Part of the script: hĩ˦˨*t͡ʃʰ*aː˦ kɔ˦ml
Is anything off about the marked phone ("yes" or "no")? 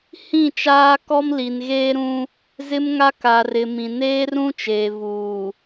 yes